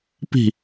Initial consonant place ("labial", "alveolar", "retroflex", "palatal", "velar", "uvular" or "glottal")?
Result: labial